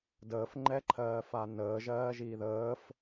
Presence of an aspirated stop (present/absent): present